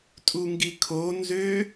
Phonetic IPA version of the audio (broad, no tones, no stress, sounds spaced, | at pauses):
tʼ u ŋ ɡ i kʰ o n z ø